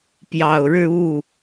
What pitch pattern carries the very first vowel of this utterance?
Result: low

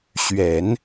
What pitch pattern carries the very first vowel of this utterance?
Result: low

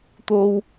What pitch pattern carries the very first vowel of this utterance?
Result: low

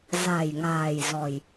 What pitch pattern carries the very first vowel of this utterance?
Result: low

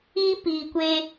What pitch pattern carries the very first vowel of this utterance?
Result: high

